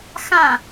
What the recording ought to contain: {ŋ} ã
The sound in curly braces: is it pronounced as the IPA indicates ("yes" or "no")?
no